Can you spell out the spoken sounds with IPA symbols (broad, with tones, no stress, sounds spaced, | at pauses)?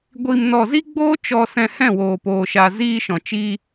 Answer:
ɡʷ iː˧ m n ɔ˧ z i˦ ɡ͡b oː˦ t͡ʃ ɔ˧ s ɛ̃˧ h ɛ̃˦˨ w oː˨ p oː˨ ʃ a˨ z iː˧ ʃ ɔ̃˨ t͡ʃ i˧